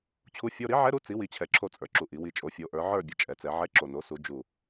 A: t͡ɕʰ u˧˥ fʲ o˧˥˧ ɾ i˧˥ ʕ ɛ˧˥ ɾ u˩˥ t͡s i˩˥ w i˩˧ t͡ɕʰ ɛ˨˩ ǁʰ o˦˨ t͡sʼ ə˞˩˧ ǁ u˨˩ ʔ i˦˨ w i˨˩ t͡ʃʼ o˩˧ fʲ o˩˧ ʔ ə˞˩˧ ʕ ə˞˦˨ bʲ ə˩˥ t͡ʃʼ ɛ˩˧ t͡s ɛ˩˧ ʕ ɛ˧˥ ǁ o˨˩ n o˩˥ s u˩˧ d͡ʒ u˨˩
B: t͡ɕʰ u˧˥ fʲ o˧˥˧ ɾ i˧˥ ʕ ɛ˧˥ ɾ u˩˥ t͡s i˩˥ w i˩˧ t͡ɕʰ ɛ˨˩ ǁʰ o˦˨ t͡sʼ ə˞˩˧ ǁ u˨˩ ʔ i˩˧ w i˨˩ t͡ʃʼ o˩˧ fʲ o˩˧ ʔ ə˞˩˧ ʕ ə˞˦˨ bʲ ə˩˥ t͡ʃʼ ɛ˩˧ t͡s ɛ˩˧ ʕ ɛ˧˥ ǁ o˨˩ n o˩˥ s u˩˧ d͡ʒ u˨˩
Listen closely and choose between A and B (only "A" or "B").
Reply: B